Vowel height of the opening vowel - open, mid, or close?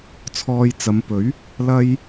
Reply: mid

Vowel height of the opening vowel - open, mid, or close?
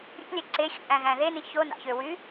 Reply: close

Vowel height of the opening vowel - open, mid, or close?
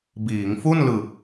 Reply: close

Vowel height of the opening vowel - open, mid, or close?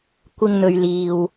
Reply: close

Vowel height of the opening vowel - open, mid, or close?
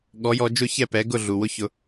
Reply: mid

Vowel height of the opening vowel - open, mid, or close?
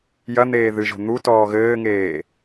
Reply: open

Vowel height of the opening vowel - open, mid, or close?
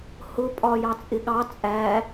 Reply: close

